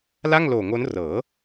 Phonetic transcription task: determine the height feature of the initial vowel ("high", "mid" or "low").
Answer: low